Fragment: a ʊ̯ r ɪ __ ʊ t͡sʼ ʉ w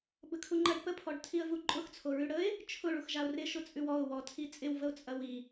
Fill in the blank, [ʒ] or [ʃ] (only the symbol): ʃ